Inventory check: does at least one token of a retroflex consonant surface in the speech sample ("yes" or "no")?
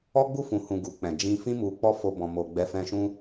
no